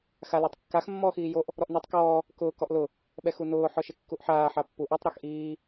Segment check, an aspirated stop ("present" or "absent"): absent